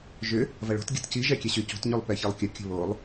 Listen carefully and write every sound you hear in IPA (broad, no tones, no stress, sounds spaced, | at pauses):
ʒ ʏ | v ɐ ɭ o̤ t ɡʲ ə̤ t c i ʒ ɛ kʲ ɛ ɕ y c o̤ t ɲ y lˠ p ɛ ç i lˠ kʲ ə kʲ ə̤ β o lˠ